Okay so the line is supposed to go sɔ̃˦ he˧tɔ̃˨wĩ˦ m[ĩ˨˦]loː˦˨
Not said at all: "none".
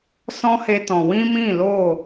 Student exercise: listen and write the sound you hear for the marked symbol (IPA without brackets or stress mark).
ĩ˦˨